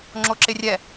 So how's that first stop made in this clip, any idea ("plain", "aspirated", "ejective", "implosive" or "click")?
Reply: click